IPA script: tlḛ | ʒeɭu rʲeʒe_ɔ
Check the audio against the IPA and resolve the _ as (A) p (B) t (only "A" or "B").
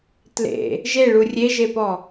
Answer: A